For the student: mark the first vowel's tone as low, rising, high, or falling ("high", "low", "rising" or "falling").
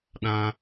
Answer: high